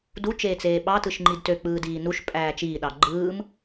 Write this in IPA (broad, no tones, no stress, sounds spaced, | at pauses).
d u t͡ʃ eː t͡s eː ɓ ɑ t ɯ ʃ ŋ͡ǃ i d t ø k͡p ɯː d iː n u ʃ pʼ æː t͡ʃ iː ɗ ɑ ɡ͡ǃ ɯː m